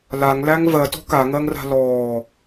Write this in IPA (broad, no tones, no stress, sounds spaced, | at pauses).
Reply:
l a ŋ l æ ŋ v ɜ t ɔ̤ k a ŋ ɜ ŋ r a̤ l ɔː